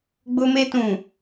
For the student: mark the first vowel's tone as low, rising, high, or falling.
high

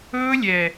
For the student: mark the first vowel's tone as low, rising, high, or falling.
high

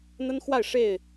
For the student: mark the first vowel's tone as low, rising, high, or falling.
high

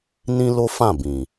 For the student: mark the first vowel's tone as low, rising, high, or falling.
high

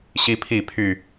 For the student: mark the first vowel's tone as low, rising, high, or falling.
high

